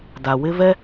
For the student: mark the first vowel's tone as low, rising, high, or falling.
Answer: low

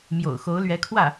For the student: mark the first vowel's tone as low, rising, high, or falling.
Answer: low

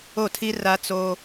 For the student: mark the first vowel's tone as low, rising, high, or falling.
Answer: falling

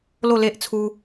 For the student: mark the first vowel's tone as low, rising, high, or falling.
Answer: falling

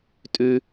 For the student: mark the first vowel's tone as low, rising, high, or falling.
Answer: high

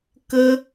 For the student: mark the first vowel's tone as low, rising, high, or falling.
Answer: high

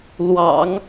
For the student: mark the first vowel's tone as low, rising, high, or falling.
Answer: low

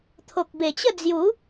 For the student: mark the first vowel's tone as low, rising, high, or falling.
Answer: low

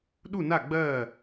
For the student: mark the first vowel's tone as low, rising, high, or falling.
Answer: falling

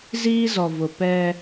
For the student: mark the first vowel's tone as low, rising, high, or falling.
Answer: high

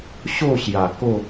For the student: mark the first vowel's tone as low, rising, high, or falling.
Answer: falling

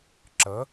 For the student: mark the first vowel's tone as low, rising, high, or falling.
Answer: rising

